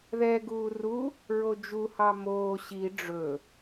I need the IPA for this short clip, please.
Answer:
ð ɛ ɡ uː r u | ɹ o d͡ʒ u h ɑ m oː ɕ i ɖ͡ʐ ɵ

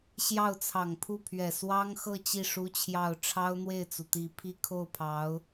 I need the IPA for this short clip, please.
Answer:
ɕ j ɑ˥˩ ʊ̯ t͡sʰ ɑ˨˩ ŋ pʰ u˥˩ pʰ ɥ ɛ˨˩ s w ɑ˥ ŋ x ɤ˥˧ t͡ɕ i˥˩ ʂ u˥ t͡ɕʰ j ɑ˥˩ ʊ̯ ʈ͡ʂʰ ɑ˥ ʊ̯ n̪ w e˥˩ ɪ̯ t͡s u˩ t̪ i˧˥ pʰ i˥ kʰ o˥˩ ʊ̯ pʰ ɑ˧˥ ʊ̯

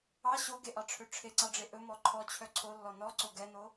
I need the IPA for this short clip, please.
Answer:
ɑ ɕ o ɡ e ʔ ɑ ʈ͡ʂʰ ø ʈ͡ʂʰ e ǀ ɑ ɖ͡ʐ e ʔ ɵ m ɔ ǃʰ ɔ t͡ɕʰ œ ǀʰ o lː ɔ n ɔ ǀ o ɡ ɛ n o

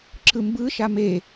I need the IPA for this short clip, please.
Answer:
ǁ ɯ m b ɯ ʃ a m e

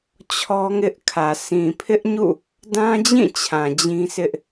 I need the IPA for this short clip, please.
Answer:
t͡ɕʰ ɔ˦ ŋ ɪ˦ ʔ kʰ ä˨ sʰ ĩ˨ pʰ ɪ˦ ʔ ɲ ṵ˦˨ | d ã˦ d͡ʑ ĩ˦˨ t͡ɕʰ ã˨ d͡ʑ ĩ˦ s ɪ˦ ʔ

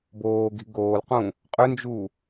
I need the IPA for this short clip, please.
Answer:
b oː ɡ i̤ ɡ oː l q ũ | qʼ ʏ n d͡ʒ u

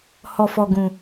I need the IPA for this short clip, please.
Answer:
h ɔ˧ f ɔ˧ ɡ ũ˧

